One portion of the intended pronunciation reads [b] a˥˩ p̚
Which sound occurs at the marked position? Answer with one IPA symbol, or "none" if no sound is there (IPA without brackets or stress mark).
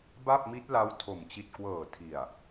b